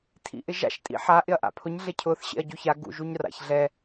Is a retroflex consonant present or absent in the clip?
absent